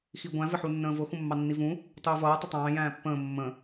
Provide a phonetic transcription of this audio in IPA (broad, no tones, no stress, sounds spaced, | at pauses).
x i ɡʷ æ̃ v ɪ ħ u nː ə̃ː v ʊ x ũ mː ɑ nː i v ũ | tˤ uː v ʌː tˤ ə tˤ ɑ̃ː j æ̃ː pː ə̃ː mː ə̃